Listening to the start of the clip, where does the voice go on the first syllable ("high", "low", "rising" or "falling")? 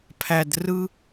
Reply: low